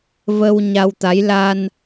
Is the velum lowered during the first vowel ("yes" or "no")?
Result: no